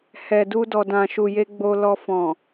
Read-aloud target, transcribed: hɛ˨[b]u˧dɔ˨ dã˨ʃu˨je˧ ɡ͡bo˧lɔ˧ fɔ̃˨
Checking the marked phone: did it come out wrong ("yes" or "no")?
yes